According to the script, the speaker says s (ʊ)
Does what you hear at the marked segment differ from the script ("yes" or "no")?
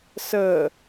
yes